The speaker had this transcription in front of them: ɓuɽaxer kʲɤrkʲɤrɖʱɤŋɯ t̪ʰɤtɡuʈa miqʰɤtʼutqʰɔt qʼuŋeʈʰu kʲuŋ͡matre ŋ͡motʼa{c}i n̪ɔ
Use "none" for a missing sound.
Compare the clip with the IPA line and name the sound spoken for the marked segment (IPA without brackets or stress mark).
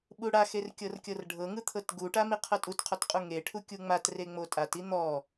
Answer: t